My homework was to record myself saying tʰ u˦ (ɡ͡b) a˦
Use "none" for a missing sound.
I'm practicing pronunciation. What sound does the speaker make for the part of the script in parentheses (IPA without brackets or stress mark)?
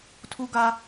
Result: ɡ